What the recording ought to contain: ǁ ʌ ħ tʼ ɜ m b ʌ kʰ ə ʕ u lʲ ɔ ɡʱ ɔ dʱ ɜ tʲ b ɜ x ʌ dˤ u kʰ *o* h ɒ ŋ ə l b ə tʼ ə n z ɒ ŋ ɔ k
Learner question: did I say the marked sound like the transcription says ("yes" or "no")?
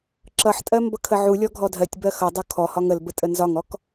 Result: no